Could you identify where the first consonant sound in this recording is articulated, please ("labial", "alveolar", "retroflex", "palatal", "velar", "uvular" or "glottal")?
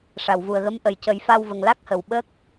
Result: retroflex